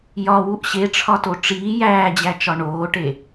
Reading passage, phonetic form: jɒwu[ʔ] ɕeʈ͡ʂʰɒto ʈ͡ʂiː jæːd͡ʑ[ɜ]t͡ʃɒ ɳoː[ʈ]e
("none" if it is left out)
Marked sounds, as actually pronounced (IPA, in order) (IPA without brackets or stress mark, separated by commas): ʔ, æ, ʈ